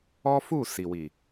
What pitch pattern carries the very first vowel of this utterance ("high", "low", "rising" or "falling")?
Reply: high